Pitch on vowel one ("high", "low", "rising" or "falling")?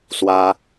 high